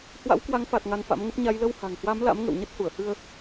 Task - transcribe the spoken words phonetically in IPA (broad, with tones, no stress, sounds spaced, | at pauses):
h w a̰˧˥ w k w a˨˦ ŋ f a˨˩ t̚ ŋ a˧ n f a̰˧˥ m ŋ ə˦˥ p̚ ɲ a˧ j l ə˧ w h a̤˨˩ ŋ h w a˨˦ m l a̰˧˥ m ŋ ə̰˧˨ w ɲ ə˦˥ t̚ h u˧˩ ə̯ h ɨ˧ ə̯